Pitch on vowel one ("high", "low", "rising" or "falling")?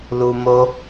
low